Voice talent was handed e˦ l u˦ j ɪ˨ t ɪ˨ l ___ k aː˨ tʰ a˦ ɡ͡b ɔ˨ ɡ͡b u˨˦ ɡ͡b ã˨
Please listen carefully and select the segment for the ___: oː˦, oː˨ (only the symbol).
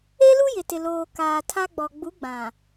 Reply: oː˨